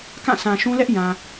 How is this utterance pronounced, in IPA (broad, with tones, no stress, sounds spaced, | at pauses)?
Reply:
k ã˦˨ sʰ ã˨ ʃ ũ˦ l ɛ˦ ʔ j ã˨